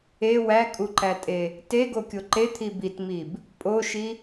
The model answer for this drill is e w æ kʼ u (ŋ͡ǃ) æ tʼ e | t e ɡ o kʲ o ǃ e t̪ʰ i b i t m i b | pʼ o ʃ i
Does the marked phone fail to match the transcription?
yes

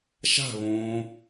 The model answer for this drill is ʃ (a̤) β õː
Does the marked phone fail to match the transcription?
no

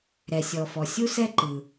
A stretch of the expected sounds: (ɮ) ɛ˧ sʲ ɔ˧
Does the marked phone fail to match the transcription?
yes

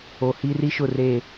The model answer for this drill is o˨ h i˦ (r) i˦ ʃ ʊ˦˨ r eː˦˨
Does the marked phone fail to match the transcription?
no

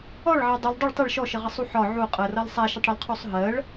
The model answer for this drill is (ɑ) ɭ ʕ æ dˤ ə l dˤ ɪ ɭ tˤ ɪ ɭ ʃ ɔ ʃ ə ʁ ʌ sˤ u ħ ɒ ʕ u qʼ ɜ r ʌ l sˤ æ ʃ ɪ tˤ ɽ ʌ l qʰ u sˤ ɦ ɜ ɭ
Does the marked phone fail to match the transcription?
yes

